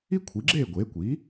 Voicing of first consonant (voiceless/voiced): voiceless